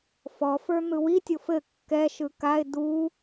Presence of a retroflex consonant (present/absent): absent